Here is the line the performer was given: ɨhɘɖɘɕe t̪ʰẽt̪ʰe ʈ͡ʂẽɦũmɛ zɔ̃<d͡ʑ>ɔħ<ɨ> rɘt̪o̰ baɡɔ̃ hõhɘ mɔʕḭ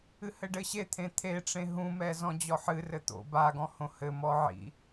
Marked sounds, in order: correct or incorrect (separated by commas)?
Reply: correct, correct